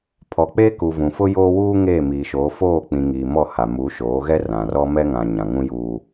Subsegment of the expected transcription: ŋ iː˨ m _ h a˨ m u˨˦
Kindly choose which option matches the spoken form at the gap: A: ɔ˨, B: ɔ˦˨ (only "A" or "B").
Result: B